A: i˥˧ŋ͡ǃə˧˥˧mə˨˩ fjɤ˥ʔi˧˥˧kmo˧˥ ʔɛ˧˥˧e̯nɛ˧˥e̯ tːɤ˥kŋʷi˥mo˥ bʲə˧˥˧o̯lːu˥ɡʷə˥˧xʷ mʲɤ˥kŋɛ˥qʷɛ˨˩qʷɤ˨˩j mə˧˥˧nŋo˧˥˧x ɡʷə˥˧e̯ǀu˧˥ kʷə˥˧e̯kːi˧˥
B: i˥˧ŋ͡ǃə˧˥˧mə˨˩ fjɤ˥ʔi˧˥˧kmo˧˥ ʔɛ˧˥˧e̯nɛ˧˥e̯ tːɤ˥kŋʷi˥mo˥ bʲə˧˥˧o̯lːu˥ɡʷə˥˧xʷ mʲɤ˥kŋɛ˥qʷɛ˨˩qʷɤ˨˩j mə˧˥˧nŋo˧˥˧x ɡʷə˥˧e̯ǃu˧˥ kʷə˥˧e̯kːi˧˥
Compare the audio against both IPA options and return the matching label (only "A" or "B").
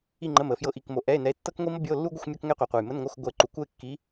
B